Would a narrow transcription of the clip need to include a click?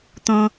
no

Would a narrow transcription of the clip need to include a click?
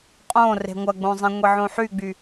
no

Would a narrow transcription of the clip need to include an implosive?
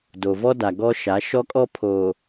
no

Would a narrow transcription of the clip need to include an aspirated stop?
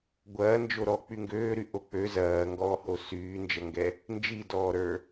no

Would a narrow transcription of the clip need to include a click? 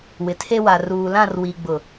no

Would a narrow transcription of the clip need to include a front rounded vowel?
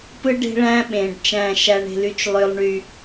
yes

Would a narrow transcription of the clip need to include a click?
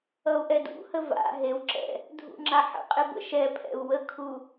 yes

